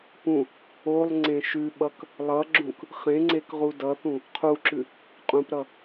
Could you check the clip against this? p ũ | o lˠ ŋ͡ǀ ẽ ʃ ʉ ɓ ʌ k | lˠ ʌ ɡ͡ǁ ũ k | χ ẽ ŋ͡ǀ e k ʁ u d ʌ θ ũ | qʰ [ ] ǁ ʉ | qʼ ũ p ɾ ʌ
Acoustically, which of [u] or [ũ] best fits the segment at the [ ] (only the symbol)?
u